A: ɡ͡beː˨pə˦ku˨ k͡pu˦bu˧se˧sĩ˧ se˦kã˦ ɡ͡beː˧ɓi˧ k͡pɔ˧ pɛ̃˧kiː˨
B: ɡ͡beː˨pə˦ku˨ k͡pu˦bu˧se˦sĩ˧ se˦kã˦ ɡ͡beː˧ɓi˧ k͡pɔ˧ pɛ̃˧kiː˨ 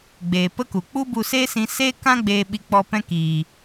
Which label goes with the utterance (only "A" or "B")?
B